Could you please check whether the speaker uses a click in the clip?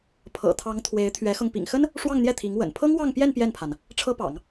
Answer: no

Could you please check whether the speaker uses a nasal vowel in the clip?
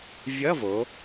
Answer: no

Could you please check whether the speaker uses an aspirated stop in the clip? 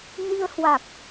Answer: no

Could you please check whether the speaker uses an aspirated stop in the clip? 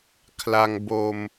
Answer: yes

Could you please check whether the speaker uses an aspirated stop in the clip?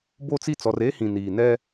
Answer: no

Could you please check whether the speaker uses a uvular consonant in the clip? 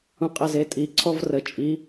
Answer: yes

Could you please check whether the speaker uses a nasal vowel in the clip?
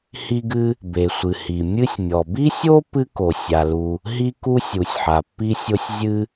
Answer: no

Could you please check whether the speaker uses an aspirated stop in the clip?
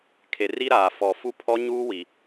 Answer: yes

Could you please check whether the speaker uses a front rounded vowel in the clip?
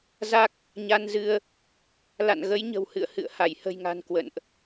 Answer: no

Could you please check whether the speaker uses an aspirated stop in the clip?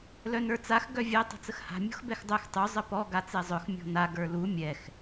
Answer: no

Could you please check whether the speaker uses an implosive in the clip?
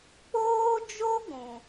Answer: no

